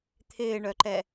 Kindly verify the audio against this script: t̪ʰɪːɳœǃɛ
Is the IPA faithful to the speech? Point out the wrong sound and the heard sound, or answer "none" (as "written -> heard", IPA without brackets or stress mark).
none